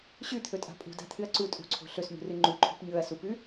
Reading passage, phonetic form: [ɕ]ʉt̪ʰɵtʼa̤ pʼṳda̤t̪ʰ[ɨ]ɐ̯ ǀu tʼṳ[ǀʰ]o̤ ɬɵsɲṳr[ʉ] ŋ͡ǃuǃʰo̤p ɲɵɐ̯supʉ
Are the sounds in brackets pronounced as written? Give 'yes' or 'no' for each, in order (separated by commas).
yes, yes, yes, no